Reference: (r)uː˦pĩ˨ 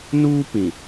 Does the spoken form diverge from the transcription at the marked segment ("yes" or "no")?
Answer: yes